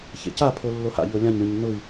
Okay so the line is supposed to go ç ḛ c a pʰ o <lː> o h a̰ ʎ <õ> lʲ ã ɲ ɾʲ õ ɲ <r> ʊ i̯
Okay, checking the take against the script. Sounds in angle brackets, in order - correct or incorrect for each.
correct, incorrect: o, incorrect: n

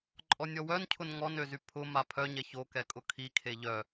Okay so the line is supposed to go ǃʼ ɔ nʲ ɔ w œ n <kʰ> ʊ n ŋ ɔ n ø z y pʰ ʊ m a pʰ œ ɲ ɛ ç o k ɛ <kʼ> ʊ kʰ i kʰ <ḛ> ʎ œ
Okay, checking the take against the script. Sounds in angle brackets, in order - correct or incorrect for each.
incorrect: cʰ, correct, incorrect: e

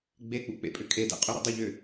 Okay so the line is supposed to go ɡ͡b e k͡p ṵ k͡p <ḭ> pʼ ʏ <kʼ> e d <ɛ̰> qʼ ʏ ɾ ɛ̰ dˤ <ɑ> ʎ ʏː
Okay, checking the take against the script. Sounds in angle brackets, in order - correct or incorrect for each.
incorrect: ḛ, correct, correct, incorrect: ə

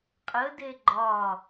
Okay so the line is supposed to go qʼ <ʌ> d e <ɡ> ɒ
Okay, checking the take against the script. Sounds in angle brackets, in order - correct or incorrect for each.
incorrect: ə, incorrect: ɡ͡ǃ

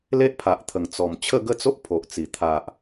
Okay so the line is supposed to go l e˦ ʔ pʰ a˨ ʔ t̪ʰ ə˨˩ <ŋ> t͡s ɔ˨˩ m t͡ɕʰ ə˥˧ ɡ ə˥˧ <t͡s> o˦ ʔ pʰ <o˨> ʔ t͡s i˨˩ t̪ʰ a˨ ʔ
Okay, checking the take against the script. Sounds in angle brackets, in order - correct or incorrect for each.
correct, correct, correct

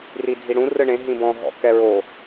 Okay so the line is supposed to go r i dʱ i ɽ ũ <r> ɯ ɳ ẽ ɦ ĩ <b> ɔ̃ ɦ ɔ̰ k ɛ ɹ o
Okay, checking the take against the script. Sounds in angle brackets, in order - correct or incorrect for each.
correct, correct

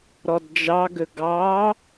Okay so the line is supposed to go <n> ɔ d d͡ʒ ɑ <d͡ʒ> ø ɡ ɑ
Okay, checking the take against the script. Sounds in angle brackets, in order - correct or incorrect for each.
incorrect: ɾ, incorrect: ɡ

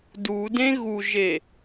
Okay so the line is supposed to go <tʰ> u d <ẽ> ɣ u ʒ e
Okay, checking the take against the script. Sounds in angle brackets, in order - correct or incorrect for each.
incorrect: d, correct

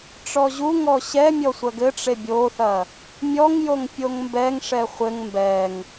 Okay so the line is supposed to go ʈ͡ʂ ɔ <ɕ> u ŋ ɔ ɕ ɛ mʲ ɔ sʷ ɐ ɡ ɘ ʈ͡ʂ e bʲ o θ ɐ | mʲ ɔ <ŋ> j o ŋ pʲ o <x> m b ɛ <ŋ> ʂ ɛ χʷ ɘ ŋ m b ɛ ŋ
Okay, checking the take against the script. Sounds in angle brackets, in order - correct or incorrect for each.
incorrect: ʑ, correct, incorrect: ŋ, correct

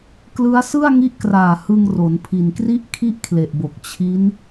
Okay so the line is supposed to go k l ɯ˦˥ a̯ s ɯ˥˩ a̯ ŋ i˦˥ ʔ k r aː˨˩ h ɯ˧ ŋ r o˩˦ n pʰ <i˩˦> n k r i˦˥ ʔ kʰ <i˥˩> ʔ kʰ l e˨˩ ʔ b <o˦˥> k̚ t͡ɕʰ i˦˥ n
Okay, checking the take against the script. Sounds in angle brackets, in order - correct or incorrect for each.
incorrect: i˨˩, correct, incorrect: o˨˩

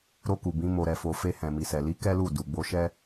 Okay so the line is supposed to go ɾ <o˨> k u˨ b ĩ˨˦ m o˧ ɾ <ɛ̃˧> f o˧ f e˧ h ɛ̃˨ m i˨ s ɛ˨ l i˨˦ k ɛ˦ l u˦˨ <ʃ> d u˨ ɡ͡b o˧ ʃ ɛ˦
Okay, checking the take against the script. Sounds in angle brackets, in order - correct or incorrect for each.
incorrect: o˧, incorrect: ɛ˧, incorrect: none

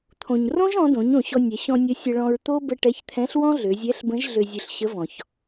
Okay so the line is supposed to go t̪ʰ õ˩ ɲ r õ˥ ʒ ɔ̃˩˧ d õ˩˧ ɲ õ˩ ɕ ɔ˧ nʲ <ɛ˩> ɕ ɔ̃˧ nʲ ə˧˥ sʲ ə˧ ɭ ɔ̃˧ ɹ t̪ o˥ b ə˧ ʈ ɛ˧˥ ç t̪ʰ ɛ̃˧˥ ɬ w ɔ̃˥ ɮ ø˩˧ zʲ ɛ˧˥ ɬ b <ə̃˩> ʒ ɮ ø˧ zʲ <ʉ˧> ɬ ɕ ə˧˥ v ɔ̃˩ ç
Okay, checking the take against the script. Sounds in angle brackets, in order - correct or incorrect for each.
incorrect: ɛ˩˧, incorrect: ə̃˧˥, correct

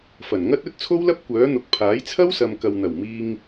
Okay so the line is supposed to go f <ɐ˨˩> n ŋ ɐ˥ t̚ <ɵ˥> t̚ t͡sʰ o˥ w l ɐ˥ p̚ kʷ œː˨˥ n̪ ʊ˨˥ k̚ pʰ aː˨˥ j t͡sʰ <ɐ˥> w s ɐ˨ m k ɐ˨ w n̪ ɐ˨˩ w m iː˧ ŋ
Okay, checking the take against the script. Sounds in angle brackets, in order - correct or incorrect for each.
correct, correct, correct

